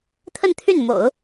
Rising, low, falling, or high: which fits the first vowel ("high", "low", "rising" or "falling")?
falling